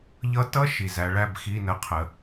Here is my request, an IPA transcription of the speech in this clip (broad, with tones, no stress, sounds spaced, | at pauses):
ʎ ʌ˧˥ t ʌ˧˥˧ ʃ i˩ z æ˩˧ ɭ æ˦˨ b x i˧˥˧ n ə˧˥ qʰ ə˩˧